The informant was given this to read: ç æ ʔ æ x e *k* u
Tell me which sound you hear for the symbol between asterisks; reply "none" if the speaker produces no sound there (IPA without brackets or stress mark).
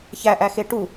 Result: ʈ